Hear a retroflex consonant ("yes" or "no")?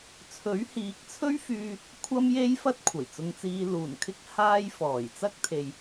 no